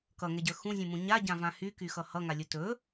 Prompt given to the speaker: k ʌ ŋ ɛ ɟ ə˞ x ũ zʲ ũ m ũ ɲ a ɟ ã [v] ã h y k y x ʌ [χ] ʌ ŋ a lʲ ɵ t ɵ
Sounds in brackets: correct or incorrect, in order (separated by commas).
correct, incorrect